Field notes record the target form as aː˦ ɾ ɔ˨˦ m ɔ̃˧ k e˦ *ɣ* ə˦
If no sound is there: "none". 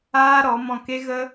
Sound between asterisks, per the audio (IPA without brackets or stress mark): ɣ